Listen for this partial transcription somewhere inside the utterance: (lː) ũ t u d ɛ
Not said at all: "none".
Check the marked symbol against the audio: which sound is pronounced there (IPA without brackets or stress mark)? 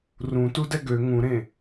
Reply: r